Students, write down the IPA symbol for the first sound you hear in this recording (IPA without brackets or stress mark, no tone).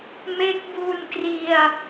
m